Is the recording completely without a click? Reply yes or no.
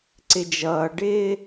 no